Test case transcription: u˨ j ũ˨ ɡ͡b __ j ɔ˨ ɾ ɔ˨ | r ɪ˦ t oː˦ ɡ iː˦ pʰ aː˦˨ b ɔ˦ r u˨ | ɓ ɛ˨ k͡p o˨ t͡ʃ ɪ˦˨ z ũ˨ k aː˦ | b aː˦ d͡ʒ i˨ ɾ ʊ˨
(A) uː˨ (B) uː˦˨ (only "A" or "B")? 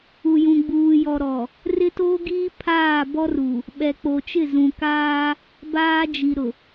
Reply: A